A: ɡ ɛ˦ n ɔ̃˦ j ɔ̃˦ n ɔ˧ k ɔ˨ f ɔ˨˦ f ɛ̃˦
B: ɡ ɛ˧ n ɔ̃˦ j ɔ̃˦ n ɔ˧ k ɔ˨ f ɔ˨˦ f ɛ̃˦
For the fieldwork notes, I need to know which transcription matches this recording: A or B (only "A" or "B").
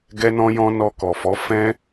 A